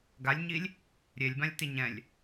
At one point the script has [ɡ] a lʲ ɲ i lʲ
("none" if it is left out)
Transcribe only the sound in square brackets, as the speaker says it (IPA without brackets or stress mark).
ɡ